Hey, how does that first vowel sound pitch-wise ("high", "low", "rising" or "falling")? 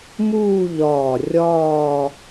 falling